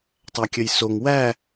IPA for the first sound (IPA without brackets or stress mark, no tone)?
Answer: tˤ